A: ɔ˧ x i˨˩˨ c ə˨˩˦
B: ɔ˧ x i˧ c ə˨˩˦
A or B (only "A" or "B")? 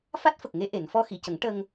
A